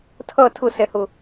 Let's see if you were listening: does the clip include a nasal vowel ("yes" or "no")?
no